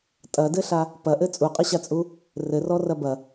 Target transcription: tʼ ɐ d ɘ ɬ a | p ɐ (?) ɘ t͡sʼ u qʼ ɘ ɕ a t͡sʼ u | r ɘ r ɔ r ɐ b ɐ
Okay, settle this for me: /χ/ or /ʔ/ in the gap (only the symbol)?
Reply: ʔ